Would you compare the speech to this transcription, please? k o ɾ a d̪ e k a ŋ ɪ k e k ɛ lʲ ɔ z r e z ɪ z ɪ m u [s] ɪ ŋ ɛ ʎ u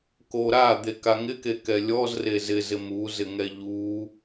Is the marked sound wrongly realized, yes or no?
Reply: yes